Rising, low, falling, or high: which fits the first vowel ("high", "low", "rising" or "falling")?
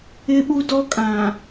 high